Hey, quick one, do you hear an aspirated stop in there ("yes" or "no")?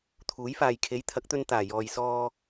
yes